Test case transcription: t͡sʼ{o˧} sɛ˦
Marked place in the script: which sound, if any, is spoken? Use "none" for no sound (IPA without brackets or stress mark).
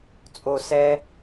o˧